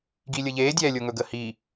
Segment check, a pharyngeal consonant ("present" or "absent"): absent